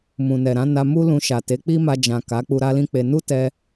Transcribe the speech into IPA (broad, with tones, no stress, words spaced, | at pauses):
mũ˨nɛ˨ɾã˨˦ na˧mu˦lũ˧ʃa˨ te˨˦k͡pi˦ma˧ d͡ʒã˨ ka˨˦ k͡pu˧ɾa˦lĩ˦ k͡pe˧ nu˦tɛ˧